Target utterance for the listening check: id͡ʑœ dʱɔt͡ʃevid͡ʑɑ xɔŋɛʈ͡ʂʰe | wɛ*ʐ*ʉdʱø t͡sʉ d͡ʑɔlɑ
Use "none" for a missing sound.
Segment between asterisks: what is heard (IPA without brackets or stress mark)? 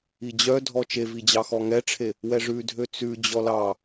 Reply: ʐ